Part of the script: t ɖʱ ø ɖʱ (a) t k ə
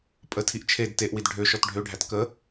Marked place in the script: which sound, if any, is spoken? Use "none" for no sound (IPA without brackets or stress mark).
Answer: æ